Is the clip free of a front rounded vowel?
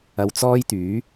no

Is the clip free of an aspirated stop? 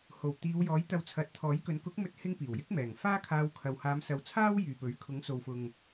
no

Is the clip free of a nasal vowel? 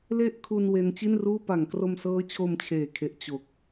yes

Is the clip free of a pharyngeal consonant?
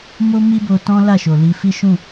yes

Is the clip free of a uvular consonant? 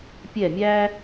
yes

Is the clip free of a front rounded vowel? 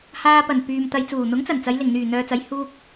no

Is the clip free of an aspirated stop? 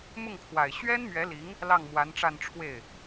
no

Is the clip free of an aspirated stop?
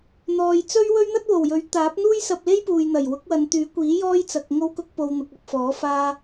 yes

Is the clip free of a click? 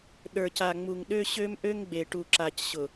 no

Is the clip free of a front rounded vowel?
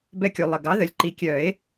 no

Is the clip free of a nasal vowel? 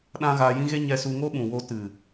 no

